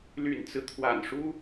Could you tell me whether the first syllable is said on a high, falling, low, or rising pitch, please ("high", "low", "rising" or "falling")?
low